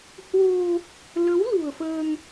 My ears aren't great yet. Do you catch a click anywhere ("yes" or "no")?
no